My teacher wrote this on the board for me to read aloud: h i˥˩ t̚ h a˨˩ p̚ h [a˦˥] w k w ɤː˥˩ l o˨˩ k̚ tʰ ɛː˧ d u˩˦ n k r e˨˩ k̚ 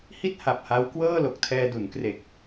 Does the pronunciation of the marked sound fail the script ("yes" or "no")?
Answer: no